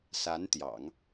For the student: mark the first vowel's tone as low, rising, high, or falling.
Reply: rising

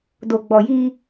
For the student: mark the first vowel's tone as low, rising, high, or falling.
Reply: low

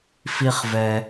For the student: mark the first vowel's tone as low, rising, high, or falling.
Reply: low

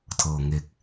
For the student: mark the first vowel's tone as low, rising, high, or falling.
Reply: low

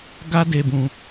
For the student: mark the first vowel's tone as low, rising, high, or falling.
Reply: high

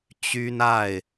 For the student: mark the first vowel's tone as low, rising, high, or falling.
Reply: high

